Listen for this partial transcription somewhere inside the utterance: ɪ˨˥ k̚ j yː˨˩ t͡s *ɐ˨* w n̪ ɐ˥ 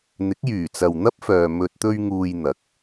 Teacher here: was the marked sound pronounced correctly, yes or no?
yes